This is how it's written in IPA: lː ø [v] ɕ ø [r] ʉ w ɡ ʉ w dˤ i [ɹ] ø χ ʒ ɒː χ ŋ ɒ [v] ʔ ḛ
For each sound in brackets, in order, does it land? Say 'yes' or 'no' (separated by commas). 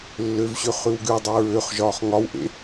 yes, no, yes, no